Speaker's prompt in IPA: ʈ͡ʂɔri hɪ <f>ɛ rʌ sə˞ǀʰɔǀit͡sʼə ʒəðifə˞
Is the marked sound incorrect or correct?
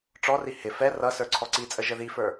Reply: correct